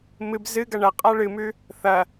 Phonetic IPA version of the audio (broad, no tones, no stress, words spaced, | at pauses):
mɨb zɨɡɐ ɳɐqʼa ɭɨmʉ | θɐ